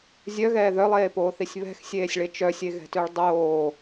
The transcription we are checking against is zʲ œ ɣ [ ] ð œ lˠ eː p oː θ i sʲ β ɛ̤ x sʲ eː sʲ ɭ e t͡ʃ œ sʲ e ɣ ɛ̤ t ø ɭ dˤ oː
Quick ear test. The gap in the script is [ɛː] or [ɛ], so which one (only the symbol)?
ɛː